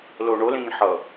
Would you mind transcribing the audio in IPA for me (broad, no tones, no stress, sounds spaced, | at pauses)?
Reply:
l o ɳ o l ẽ ɲ ħ ʌ